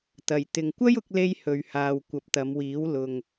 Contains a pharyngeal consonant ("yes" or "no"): no